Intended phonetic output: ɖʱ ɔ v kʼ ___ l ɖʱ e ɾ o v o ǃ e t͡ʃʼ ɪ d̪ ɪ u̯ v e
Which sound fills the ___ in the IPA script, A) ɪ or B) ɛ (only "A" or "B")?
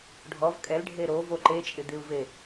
B